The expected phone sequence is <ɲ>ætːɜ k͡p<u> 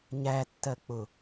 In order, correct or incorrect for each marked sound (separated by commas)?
correct, incorrect